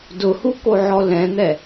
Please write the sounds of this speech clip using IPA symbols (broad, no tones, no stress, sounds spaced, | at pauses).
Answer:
d ʊ h u k o ʕ ɔ l ɛ̃ n̪ ɛ